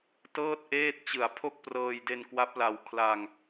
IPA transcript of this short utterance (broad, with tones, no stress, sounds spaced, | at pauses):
t ɤː˥˩ t̚ ʔ eː˥˩ t̚ t͡ɕ ɯ˨˩ a̯ pʰ o˥˩ k̚ p r ɤː˧ j d e˧ n k w a˦˥ p̚ l a˧ w kʰ l a˧ ŋ